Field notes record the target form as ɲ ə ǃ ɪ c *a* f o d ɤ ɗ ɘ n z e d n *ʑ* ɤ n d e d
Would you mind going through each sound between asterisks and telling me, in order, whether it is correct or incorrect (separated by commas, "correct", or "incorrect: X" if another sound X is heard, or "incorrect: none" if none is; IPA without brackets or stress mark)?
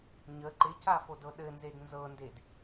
correct, incorrect: z